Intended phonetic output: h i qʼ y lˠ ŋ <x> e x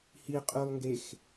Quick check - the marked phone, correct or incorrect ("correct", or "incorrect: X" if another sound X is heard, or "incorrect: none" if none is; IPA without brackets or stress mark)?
incorrect: ɡ